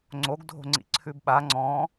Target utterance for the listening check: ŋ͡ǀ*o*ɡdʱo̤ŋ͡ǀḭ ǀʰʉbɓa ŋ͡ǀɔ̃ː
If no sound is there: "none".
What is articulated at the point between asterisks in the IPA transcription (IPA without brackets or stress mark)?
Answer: o